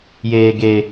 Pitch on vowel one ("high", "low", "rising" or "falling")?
high